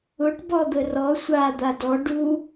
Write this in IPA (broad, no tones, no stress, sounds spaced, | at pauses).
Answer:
ʊ ʈ b ɔ d̪ ə r ɔ sʷ a d̪ a d ɔ ɖ u